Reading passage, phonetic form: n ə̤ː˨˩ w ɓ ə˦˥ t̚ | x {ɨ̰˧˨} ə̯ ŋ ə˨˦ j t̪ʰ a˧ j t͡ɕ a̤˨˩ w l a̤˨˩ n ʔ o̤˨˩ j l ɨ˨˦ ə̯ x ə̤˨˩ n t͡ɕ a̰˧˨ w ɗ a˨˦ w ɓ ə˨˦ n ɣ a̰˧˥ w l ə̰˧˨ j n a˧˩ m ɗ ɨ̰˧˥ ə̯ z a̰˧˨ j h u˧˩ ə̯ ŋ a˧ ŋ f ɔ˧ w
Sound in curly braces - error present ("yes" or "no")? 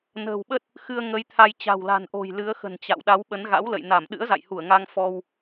yes